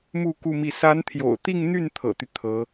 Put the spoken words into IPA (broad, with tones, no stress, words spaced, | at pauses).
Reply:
mu˥˧ ku˥˧mi˥˩ sa˧˥nt̪ʰjo̰˨˩ʊ̯t̪i˥˧ŋn̪y˥˩n t̪ʰɤ̰˨˩t̪y˦ t̪ʰɤ˧˥